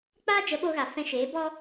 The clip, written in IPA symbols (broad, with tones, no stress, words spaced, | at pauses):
k͡paː˦d͡ʒə˨˦ ɓoː˧ɣa˨ fɛ̃˧ʃeː˨˦bɔ˦